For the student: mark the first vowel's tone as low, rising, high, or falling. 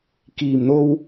low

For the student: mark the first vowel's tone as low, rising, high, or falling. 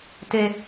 low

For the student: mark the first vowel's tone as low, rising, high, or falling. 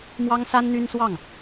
high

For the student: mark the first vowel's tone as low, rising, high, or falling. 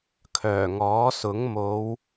low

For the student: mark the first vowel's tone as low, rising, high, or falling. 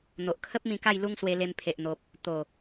low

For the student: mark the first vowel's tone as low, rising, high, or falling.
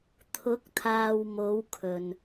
rising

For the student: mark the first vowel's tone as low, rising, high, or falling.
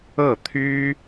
falling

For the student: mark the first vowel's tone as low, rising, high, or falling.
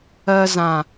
high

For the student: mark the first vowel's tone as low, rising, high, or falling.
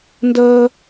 high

